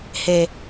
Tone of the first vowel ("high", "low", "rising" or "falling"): low